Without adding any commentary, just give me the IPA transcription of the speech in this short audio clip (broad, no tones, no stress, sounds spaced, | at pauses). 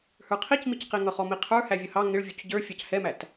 h ə˞ qʰ i c m i c q i ŋ ʌ χ ɔ m i qʰ ə˞ h æ vʲ ʌ h ɑ ŋ ɪ ɭ vʲ u c ɟ ə˞ fʲ ɑ c h ɛ m æ t